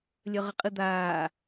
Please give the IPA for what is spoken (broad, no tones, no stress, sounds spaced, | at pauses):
lʲ œ ʁ ə qʼ ɨ d̪ aː